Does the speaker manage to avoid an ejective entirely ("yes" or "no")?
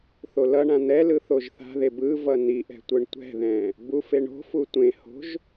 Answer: yes